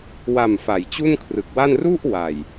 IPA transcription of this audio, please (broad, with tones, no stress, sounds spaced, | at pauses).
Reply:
w a˨˩ m f a˩˦ j t͡ɕ u˥˩ n kʰ r ɯ˨˩ k̚ w a˥˩ n r u˥˩ ʔ w a˨˩ j